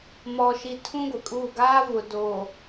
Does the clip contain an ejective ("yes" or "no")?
yes